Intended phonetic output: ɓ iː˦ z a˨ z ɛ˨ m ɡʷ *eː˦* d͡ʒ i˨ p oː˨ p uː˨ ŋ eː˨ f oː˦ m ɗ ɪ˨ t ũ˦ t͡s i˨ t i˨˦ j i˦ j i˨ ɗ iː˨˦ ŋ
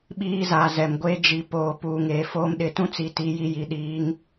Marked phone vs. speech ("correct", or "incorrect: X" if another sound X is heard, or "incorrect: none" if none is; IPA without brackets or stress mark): correct